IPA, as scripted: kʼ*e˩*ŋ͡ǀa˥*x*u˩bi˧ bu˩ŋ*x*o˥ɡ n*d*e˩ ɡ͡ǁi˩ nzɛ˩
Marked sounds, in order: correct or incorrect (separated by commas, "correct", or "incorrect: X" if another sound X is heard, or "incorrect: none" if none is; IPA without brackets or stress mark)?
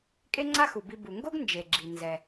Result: incorrect: e˥, correct, incorrect: ɡ, incorrect: d͡ʒ